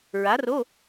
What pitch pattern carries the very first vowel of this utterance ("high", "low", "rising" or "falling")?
rising